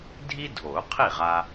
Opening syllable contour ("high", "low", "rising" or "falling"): high